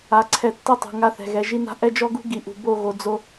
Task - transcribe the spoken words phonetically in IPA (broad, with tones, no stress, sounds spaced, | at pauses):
a˨ ǀʰ ɛ˨ tː i˦ tˤ ṳ˨ ŋ a˦ θ ɛ̤˨ ɣ ɛ˨ ʒ i˦ n a̤˦ ʔ ɛ˦ d͡ʒ ɔ˦ ɡ ṳ˦ ɡ i˨ ʔ ṳ˨ b o˦˨ ɣ o˨ d͡z o˦